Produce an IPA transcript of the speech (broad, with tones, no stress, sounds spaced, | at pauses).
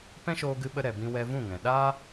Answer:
p ɛ̃˦ ʃ oː˧ ɡ ɨ˧ ɓ ə˧ ɾ ɛ˨ b ĩ˧ w ɛ˧ v ũ˦˨ ŋ ɛ̃˨ ɗ aː˦